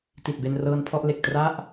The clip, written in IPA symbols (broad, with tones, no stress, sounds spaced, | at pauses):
t i˨˩ t̚ b e˧ n r ɤː˧ n pʰ ɔ˥˩ ʔ l e˨˩ k̚ t r a˥˩ ʔ